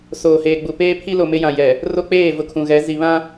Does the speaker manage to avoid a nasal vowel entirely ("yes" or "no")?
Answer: no